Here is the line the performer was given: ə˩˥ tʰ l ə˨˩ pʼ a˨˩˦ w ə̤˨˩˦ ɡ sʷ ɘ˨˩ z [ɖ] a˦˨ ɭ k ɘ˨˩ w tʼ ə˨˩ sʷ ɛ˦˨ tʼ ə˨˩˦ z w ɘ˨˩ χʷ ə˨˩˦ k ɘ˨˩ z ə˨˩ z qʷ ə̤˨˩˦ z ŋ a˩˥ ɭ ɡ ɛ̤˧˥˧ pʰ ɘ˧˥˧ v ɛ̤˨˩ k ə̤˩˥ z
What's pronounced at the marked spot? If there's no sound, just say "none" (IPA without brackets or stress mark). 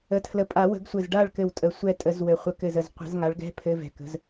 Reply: ɖ